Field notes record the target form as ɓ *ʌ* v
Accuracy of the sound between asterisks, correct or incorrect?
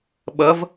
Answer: correct